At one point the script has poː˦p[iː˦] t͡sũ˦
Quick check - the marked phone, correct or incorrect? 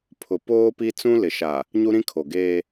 incorrect